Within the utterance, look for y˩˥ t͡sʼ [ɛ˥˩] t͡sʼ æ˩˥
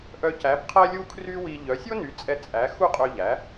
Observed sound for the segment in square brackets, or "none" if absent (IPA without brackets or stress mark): ɛ˧